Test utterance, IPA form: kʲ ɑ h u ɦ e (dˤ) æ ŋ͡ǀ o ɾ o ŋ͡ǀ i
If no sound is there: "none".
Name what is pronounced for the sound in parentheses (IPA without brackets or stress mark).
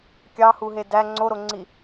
d